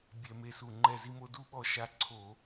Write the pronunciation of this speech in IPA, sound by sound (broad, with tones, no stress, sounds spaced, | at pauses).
bʲ ɛ˧˩˧ m e˧˩ s u˧˩ ŋ͡ǃ ɛ˧˩ z i˧ m o˧ d u˧ ɓ ɔ˧˩ ʃ a˧ ǀʰ o˧˩˧